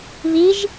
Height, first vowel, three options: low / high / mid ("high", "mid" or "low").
high